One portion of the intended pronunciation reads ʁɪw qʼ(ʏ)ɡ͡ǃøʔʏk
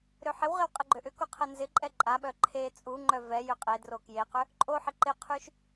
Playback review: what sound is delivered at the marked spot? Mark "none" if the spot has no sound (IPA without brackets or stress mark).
ɪ